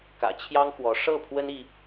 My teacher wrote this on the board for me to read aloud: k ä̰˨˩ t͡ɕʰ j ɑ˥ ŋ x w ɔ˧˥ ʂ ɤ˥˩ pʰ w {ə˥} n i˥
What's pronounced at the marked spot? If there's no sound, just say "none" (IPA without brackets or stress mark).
ə˥